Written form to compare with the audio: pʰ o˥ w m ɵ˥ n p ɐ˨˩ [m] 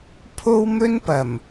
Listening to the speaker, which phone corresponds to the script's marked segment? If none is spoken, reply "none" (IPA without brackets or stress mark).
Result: m